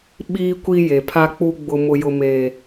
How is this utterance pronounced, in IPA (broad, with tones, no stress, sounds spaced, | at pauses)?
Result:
ɓ iː˦ kʷ i˦ j e˨ pʰ a˦ k͡p u˦ ɡ͡b ʊ˦ m ʊ˦ j ʊ˦ m eː˦